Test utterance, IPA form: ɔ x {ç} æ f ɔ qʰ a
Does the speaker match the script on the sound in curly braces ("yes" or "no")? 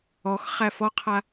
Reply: no